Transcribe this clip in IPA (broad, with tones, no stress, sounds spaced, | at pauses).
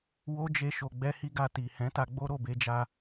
w o˦ d͡ʒ e˧ ʃ o˨ ɡ͡b ɛ˧ h i˧ ɡ a˧ t i˨ h ɛ̃˨˦ t a˧ ɡ͡b o˦ ɾ o˦˨ b e˧ d͡ʒ a˧